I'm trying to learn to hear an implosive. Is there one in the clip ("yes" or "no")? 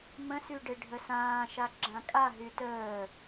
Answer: no